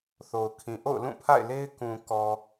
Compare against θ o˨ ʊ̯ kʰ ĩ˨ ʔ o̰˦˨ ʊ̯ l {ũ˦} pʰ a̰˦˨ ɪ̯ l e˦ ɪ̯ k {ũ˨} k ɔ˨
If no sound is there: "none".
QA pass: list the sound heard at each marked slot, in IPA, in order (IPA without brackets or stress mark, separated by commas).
ũ˦˨, ũ˨